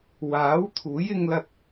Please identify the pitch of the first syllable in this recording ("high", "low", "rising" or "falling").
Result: rising